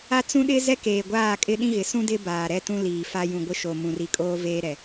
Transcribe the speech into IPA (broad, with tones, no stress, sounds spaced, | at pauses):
a˦ t͡s ũ˦ ɗ ɪ˦ z ɛ˦ k eː˨ ɡʷ aː˦˨ kʼ ɪ˦ ɗ ĩ˦ ɣ ɪ˨˦ s ũ˦ d ɪ˦ b aː˨ ɾ ɛ˦ t ũ˦ l iː˨ f a˦ j ũ˨ ɡʷ ɪ˦ ʃ o˨ m ũ˨ r i˨ kʼ oː˦ v eː˦ ɾ ɛ˨